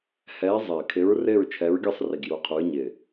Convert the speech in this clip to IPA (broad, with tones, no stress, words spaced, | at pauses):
hɛː˨˥ zˤɪː˨˩kʰɪ˨˥ɹ rɪː˥˨ɹt͡ʃʰɛ˨˥ɹɡʲɯ˥˨sˤri˨˩ɡ ju˨˥qʰu˨˥ɹ ɲɪː˨˩